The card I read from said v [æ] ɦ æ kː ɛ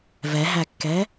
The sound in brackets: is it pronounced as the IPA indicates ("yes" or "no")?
no